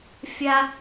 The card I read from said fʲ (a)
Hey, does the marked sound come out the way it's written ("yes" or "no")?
yes